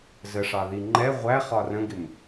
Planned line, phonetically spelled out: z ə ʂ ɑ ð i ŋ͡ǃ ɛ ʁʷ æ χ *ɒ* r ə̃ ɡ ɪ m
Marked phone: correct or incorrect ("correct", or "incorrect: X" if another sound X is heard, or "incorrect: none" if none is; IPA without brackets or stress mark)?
correct